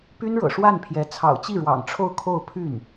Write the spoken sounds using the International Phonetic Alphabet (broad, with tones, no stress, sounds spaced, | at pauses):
p y˥ n ɻ ɤ̰˨˩ ʂ w a˥˩ n pʰ j ɛ˧˥ t͡sʰ ɑ̰˨˩ ʊ̯ t͡ɕ i˥˩ ɻ w ɑ̰˨˩ ŋ ʈ͡ʂʰ o˥˧ ʊ̯ kʰ o˥˧ ʊ̯ pʰ y˥˩ n